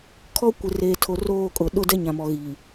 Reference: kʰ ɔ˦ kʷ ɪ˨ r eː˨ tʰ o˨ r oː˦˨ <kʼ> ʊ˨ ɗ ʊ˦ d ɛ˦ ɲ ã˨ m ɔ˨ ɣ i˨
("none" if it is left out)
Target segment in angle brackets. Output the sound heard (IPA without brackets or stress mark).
kʼ